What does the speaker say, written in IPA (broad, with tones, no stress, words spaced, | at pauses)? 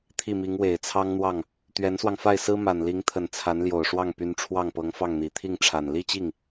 t̪ʰi˥˩mi˧˥ŋ we˨˩ɪ̯t͡sʰɑ˥ŋn̪wɑ˥˩ŋ | t̪ɥɛ˧˥nswɑ˧ŋfa˥˩ɪ̯ sɹ̩˥ma˨˩nli˧˥ŋt̪ʰə˨˩n t͡sʰa˧˥nljo˨˩ʊ̯ʂwɑ˥˩ŋpy˧˥n ʈ͡ʂʰwɑ˥˩ŋpɤ˧˥ŋ fɑ˥˩ŋn̪i˨˩ t̪ʰi˥˩ŋʈ͡ʂʰa˨˩n li˥˧t͡ɕi˥˩ŋ